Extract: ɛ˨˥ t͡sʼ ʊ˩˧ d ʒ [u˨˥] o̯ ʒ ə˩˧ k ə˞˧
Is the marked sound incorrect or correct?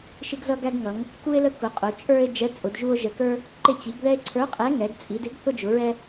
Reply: incorrect: u˧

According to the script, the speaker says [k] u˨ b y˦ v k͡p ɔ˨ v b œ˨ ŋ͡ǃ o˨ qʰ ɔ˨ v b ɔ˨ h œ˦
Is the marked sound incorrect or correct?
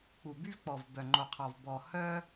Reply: incorrect: k͡p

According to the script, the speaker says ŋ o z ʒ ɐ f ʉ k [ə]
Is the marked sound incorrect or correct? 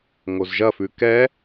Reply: incorrect: ɛ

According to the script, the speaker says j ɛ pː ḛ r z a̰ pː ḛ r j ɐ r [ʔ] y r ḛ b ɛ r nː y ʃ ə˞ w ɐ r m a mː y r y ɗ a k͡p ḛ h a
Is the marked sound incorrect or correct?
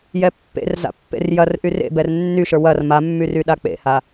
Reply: correct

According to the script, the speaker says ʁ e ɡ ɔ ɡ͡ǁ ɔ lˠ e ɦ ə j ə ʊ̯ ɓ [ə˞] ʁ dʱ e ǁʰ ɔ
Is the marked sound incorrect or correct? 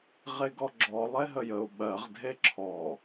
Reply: incorrect: ɜ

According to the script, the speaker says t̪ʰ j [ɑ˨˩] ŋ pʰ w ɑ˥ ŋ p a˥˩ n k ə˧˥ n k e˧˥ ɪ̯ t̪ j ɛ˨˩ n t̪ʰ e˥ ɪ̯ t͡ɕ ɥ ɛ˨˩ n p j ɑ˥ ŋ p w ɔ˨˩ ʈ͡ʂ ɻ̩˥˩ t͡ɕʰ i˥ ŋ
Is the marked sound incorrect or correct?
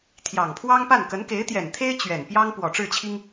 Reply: correct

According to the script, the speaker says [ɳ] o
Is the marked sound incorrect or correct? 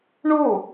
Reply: correct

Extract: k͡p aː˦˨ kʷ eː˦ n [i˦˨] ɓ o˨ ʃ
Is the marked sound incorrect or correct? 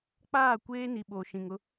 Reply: incorrect: i˨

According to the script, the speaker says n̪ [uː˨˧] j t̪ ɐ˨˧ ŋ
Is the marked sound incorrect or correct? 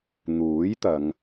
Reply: incorrect: uː˨˥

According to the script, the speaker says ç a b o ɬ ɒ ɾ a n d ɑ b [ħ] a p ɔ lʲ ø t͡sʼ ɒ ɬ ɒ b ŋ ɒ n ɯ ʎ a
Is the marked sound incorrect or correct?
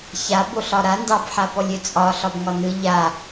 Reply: correct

